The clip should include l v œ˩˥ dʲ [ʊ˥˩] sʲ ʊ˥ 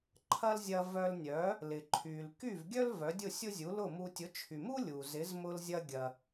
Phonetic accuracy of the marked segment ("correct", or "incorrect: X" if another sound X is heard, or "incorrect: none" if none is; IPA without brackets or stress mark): correct